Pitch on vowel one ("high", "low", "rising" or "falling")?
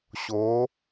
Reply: rising